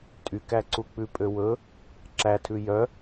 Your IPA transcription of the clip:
tʼ y k æ ǀ u k͡p ʉ pʼ ø w ɵ | ǁ æ tʰ ʉ j œ

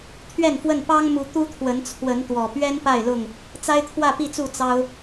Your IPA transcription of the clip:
t̪ʰ ɥ ɛ˥˨ n f w ə˥˨ n p ɑ˦ ŋ m u˨˦ t̪ u˦ t̪ʰ w ə˨˦ n t͡sʰ w ə˨˦ n t̪ w ɔ˨˩ p ɥ ɛ˦ n p a˥˨ ɪ̯ l ʊ˥˨ ŋ | t͡s a˦ ɪ̯ t̪ʰ w ä˥˨ p i˥˨ t͡s u˥˨ t͡s ɑ˦ ʊ̯

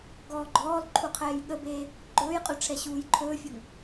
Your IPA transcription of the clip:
ɡ ɔː ɡ͡ǃ ɔː l ǃʰ u qʰ ɛː j ɠ ə b eː | ɡ͡ǃ ɵː j qʼ ɵ ʈ͡ʂʰ ɛ ɕ uː j ǃʰ ɵː fʲ ɵ ŋ

